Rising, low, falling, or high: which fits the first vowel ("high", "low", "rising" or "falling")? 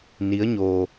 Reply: rising